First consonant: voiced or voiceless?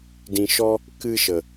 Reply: voiced